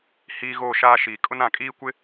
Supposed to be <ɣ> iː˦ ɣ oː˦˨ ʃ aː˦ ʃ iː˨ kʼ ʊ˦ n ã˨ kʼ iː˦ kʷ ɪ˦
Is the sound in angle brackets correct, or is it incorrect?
incorrect